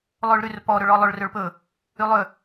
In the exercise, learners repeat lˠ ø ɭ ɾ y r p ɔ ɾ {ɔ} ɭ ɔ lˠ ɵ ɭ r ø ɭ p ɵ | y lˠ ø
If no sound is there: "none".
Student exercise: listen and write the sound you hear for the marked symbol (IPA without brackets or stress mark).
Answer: ɵ